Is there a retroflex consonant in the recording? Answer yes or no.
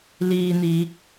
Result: no